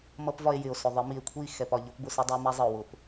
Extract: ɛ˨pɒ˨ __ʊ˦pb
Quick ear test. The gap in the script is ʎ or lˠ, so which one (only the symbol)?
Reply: ʎ